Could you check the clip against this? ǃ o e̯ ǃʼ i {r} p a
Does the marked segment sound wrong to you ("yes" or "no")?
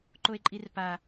no